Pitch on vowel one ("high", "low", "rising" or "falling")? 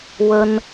high